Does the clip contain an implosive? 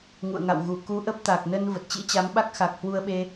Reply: yes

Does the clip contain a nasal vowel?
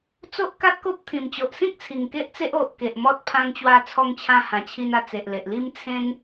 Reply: yes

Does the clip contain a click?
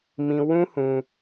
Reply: no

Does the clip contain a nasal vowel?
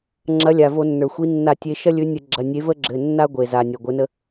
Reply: no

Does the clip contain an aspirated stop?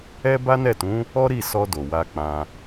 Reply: no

